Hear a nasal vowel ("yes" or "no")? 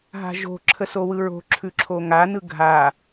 no